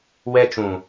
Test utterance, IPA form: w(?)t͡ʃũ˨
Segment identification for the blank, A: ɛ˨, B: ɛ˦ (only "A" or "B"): B